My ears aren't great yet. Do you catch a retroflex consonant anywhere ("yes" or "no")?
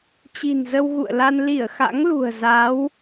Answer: no